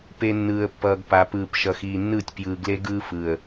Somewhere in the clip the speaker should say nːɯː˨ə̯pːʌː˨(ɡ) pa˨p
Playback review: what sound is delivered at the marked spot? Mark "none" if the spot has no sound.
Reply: ɡ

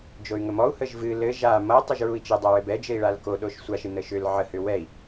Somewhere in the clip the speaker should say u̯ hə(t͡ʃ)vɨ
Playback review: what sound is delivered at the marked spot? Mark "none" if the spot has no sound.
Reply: ʒ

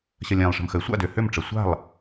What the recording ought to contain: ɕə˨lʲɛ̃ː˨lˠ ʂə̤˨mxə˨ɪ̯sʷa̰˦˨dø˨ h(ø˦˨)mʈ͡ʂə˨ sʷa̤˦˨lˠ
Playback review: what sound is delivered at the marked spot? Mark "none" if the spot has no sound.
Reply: ø˦˨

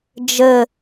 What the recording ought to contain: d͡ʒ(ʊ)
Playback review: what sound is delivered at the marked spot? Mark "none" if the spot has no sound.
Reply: ə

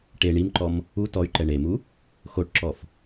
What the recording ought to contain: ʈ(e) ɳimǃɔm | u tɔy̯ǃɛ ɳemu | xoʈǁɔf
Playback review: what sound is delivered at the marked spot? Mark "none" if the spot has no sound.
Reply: e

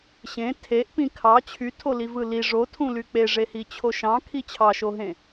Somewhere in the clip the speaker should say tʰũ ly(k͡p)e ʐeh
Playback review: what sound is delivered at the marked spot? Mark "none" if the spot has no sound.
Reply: k͡p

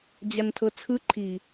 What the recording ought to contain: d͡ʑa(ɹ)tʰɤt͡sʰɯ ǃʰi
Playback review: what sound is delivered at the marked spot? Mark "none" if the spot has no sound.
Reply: n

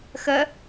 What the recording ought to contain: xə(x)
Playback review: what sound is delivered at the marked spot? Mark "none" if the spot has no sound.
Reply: none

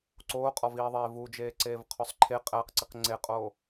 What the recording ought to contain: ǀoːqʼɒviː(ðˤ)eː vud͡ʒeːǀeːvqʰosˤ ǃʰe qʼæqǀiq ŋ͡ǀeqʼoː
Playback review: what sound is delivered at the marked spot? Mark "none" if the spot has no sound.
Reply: ðˤ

